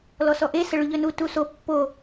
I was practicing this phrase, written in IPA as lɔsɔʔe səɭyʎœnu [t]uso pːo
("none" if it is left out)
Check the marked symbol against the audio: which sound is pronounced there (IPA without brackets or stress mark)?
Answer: t